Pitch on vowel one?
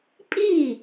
falling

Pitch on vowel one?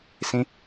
high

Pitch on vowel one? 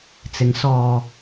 rising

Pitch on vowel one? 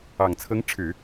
low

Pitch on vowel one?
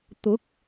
rising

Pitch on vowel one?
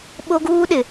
high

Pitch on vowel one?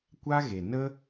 high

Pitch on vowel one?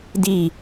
falling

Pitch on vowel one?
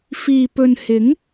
low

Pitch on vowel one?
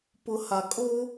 high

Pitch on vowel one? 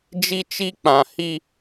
high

